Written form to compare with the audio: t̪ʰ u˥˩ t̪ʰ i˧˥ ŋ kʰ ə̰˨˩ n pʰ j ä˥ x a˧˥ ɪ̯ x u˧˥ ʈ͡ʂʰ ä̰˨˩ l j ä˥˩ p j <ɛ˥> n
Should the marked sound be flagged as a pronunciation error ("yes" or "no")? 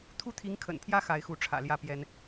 no